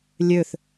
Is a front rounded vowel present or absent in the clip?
present